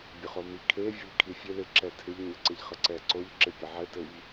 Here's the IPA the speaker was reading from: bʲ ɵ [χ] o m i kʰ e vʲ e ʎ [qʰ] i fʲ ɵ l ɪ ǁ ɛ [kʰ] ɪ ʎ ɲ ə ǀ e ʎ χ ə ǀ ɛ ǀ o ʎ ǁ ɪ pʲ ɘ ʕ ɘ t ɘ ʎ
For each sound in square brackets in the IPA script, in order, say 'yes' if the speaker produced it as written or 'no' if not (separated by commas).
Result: yes, no, no